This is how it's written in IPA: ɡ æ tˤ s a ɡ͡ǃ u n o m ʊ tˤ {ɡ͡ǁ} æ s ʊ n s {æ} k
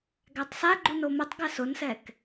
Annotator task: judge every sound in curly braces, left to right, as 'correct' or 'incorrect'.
incorrect, incorrect

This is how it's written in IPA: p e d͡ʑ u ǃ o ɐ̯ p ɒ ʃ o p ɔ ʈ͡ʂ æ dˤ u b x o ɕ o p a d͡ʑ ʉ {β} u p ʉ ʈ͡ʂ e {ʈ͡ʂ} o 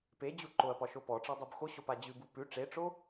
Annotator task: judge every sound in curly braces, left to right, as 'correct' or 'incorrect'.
incorrect, correct

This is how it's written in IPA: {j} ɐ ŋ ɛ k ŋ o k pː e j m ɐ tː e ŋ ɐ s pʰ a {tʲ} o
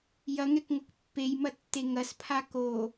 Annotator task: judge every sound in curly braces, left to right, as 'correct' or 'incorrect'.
correct, incorrect

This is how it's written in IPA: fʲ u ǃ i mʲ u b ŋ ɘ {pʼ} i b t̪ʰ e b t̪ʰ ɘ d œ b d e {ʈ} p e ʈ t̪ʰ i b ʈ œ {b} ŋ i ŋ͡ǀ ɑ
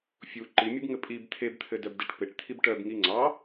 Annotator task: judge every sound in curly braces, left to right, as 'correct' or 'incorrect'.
correct, correct, correct

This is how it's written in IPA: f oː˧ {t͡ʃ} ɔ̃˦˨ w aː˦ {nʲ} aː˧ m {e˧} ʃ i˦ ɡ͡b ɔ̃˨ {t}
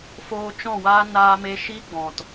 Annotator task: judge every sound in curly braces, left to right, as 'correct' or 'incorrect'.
correct, incorrect, correct, correct

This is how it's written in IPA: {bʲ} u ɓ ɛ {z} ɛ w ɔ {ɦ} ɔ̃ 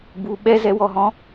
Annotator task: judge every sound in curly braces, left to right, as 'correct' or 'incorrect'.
incorrect, correct, correct

